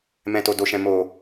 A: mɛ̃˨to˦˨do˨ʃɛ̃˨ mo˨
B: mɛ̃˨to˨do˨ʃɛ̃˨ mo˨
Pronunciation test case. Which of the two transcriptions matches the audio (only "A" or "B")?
B